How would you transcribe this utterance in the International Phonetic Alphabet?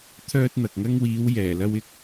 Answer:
t̪ʰ œː˧ t̚ n̪ ɐ˨ k̚ ŋ ɐ˧ ŋ w iː˨˧ w j ɛː˨˩ l ɐ˧ w ɪ˧ k̚

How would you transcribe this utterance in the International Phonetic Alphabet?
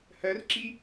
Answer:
h ɜ r ǁ i

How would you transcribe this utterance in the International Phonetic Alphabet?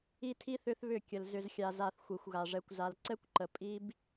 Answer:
i˦ tʰ i˦ θ ʏ˦ θ β ʏ˦˨ kʲ ə˨ l z ʏ˨ z xʲ a˨ z a˨ θ xʷ i˨ xʷ ɣ a˨ ʐ ɛ˨ kʷ z a˨ l ǀ ɛ˦ kʷ ǃ ə˨ pʼ i˦ b

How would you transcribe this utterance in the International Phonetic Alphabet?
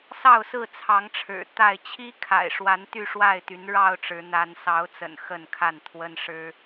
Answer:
s ɑ˥˨ ʊ̯ s ɹ̩˥˨ t͡sʰ ɑ˨˦ ŋ ʈ͡ʂʰ ɻ̩˨˩ t̪ a˥˨ ɪ̯ t͡ɕʰ i˦ kʰ a̰˨˩ ɪ̯ ʂ w a˨˦ n t̪ y˥˨ ʂ w a˥˨ ɪ̯ t̪ y˨˦ n ɻ ɑ˥˨ ʊ̯ ʈ͡ʂ ɻ̩˨˦ n̪ a˨˦ n s ɑ˨˦ ʊ̯ t͡s ə̰˨˩ n x ə˥˨ n kʰ a˥˨ n t̪ʰ w ə˦ n ʂ ɻ̩˦

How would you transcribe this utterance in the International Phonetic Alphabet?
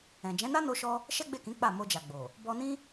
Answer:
ɛ̃˨ d͡ʒ ɛ̃˨˦ n a˦ n o˦ ʃ ɔ˦ | ʃ ɛ˦ ɡ͡b e˦˨ k ĩ˨˦ k͡p a˦˨ m o˧ d͡ʒ a˨ ɡ͡b o˨ | b ɔ˧ n ĩ˦

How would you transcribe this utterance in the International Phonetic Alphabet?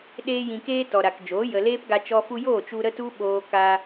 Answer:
ɗ eː˧ j ĩ˨ k eː˧ t ɔ˨ ɾ a˨ k d͡ʒ oː˨˦ j ə˨ l eː˦ p ɡ a˧ t͡ʃ ɔ˧ f u˧ j oː˦˨ t͡ʃ u˧ ɾ ə˦ t u˦ ɓ oː˧ k a˧

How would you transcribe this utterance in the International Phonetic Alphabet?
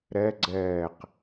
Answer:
ɾ ɛ ɡ͡ǀ ɛː q

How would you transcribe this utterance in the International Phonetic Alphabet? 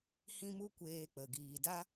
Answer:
h ĩ˦ m u˦ kʷ eː˧ k͡p ə˨ ɡ iː˨ d a˦

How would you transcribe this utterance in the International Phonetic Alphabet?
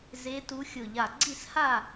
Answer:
z e˨˦ t u˨˦ xʲ ʊ˧˩ ʎ a˧˩ ɡ͡ǀ i˥˨ s h a˥˨

